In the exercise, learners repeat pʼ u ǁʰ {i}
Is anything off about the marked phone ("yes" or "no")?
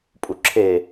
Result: yes